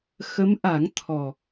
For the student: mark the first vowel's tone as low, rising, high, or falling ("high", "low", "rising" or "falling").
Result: rising